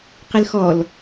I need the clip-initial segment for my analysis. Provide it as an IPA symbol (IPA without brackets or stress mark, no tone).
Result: q